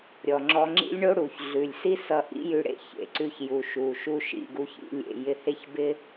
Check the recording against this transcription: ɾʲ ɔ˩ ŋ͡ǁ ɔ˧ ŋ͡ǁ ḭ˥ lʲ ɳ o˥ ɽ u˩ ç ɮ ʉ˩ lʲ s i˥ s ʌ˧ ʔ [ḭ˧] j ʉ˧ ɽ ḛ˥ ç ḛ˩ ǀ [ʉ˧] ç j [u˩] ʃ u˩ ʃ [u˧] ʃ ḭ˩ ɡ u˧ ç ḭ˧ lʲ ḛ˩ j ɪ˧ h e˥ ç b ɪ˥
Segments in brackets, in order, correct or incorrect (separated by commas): incorrect, correct, correct, correct